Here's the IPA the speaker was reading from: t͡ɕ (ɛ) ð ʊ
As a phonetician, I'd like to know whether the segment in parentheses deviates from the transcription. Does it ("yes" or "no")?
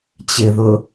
yes